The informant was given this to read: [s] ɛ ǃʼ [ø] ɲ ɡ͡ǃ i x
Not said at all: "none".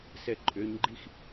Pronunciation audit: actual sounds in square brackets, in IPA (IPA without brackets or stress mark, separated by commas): s, ø